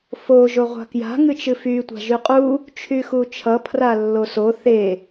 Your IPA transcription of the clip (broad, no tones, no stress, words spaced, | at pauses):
fo ʒoʁʷa̤kja̤ ŋɨt͡ʃɨfy tʷa̤ʒyqʼu | t͡ʃʰyxut͡ʃʰʌ pʰralːoso θe